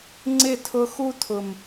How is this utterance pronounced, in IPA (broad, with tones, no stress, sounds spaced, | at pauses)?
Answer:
ŋ͡ǀ ɪ˦˨ tʰ ʊ˧ x u˦ tʰ ʊ˨ m